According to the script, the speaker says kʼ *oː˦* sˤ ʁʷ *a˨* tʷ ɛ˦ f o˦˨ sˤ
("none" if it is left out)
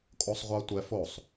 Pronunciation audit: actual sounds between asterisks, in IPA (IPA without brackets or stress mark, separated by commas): o˦, a˦